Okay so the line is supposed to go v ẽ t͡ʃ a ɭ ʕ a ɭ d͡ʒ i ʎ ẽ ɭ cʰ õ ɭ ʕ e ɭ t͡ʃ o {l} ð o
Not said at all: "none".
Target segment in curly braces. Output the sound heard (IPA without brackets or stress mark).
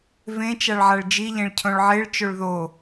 ɭ